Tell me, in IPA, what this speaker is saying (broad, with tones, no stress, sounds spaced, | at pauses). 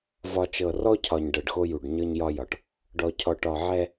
v ɒ˨ t͡ʃ ɤ˨ r ɔ˦ cʰ ɒ˨ ɲ ɖ ɤ˨ ɖ x o˦ j u˨ ɖ ɲ ɤ˦ ɲ j ɒ˦ j ɒ˨ ʈ | ɖ ɔ˨ cʰ ɔ˨ ʈ ɒ˨ ʕ ɛ˦